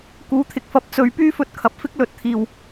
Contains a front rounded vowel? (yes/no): yes